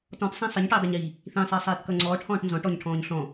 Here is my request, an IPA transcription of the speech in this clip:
t ɔ̃ t sˤ æ̃ sˤ i ɲ ʈ iː dˤ ə˞ ɲ iː | θ ĩ sˤ ɪː sˤ iː t k ʌ ŋ͡ǀ ɔː ʈ h ɔ̃ː ʈ n z ɔ̃ ʈ ɔ ɲ ʈʰ ɔ̃ː ɲ ɬ ɔ̃

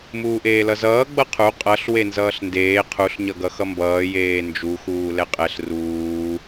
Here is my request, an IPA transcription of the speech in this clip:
m uː ʔ eː l ʌ z ʌː ɡ͡b ʌ qʰ u qʼ ʌ ɬ w e n z ʌː ɬ n d eː qʰ u ɬ ɲ ʌ ɡ ʌ x ʌ m b ʌː j eː n d͡ʒ u x uː l ɛ qʼ ɛ ɬ r uː

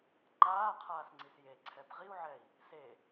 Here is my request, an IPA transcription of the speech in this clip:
ŋ͡ǃ aː qʰ aː s ŋ͡ǀ i s j e ǀʰ ɛ b ʁ i u̯ ʕ ɛ i̯ | s e

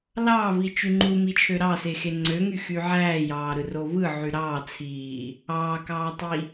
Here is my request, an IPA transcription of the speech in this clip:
l ɑː v i t͡ʃ y ŋ͡ǃ u m i t͡ʃʰ ø ɾ ɑ s e x e ŋ͡ǀ ø ŋ y x y ʕ æː j ɑː ɾ ɯ r o v ɯ ʕ y ɾ ɑː t͡sʰ iː | ɑː k ɑː tˤ i

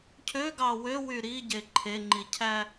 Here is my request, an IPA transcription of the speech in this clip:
cʰ ø ɡ ɑ w ø w y ɾ i ɟ e ǃʰ e ŋ͡ǃ i cʰ æ

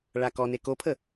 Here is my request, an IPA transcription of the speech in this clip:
ɭ a k ɔ n e k o pʰ ə

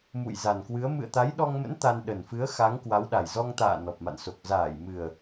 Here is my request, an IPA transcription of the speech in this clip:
m ṵ˧˨ j z a˨˩ n k w ɨ˨˦ ə̯ m ɨ̰˧˨ ə̯ t̪ a˨˦ j ɗ ɔ˧ ŋ m ə̰˧˥ n t̪ a˧ n ɗ ə˨˩ n f ɨ˨˦ ə̯ x a˨˦ ŋ k w a˨˦ w ɗ a˨˩ j z ɔ˧ ŋ t̪ a̰ː˧˨ n ɔ˨˩ p̚ m a̰˧˨ n s o˨˩ k̚ z aː˧˩ j m ɨ˨˩ ə̯

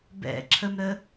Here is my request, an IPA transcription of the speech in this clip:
b ɛ̰ ǁʰ ə m ɾ ə

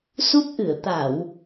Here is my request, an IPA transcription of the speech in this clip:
s u˦˥ p̚ ʔ ɨ˧˩ ə̯ t̪ a˧˩˨ w

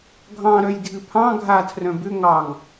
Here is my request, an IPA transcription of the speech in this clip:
ɡʱ ɑ̃ ɾ œ j dʱ ɨ pʰ ɑ̃ ɡʱ a tʰ r œ̃ b ʏ ŋ ɑ ŋ

